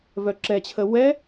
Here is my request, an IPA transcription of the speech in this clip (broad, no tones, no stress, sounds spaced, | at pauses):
v œ ǁ ɛ t͡ɕʰ ə w ɛ